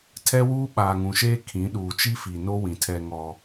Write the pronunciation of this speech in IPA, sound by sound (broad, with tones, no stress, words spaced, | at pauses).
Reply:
tʰɛ˦wuː˦ ɓaː˨ŋũ˨ʃeː˦ kʰĩ˨˦ ɗuː˨t͡ʃi˦fi˨no˦ wĩ˨tʰɛ˦ŋɔ˦